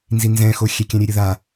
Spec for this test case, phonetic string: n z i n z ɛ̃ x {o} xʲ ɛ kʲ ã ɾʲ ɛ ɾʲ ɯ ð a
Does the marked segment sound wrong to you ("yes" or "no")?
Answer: no